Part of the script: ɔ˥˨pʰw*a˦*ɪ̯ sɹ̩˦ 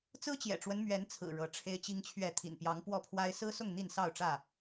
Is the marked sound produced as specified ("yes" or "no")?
yes